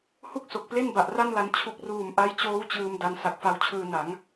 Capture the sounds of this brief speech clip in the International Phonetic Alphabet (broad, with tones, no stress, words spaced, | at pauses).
hu˥˩k̚so˨˩k̚ple˥˩n ba˨˩ʔra˥˩nla˧n t͡ɕʰu˨˩k̚ruː˨˩m ʔa˦˥jt͡ɕoː˦˥w t͡ɕɯː˧m da˧n sa˨˩k̚fa˧wt͡ɕʰɯː˧na˩˦ŋ